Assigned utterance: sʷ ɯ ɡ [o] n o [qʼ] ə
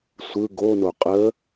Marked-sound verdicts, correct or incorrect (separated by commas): correct, correct